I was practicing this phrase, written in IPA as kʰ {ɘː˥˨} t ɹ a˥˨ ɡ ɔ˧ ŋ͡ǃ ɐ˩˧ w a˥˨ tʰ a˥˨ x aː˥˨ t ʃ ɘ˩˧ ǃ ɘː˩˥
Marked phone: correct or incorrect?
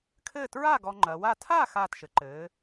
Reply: correct